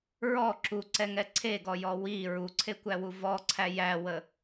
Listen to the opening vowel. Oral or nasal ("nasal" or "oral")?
oral